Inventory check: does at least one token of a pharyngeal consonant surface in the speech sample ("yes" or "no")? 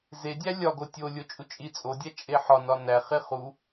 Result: yes